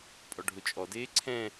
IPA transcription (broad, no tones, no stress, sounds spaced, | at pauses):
pʼ ɔ ɖʱ ʊ t͡ʃʼ ɔ d eː ǀʰ ɛ̃